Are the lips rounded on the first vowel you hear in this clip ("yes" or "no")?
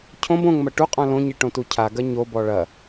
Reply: yes